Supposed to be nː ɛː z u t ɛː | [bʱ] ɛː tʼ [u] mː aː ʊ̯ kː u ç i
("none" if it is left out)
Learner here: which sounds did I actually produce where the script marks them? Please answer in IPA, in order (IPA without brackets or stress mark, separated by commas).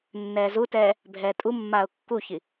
bʱ, u